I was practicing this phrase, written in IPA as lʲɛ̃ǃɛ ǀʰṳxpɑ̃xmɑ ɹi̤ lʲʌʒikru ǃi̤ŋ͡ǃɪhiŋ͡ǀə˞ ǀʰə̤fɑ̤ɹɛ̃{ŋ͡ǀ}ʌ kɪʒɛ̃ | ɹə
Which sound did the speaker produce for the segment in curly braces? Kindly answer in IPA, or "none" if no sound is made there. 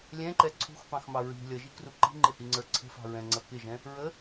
ŋ͡ǀ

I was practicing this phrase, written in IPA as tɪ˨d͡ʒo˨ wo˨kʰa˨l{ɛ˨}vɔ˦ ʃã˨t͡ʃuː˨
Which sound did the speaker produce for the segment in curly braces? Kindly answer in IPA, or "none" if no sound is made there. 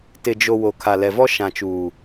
ɛ˨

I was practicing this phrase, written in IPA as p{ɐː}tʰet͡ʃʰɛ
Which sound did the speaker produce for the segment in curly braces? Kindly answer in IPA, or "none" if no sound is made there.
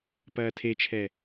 ɐː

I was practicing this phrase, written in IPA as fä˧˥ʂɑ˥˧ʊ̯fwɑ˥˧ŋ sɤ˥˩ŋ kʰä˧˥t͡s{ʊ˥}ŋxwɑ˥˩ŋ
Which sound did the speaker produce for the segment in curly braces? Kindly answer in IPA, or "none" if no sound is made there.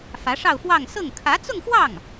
ʊ˥˧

